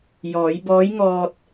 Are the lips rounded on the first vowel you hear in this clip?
yes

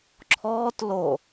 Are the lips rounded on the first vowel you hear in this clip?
yes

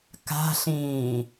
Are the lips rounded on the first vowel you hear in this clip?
no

